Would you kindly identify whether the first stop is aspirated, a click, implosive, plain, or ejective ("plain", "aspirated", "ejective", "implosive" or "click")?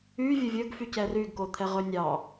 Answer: plain